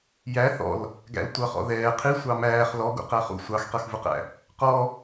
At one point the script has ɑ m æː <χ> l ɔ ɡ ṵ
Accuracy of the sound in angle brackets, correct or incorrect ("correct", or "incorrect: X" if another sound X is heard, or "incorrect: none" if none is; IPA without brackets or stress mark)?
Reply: correct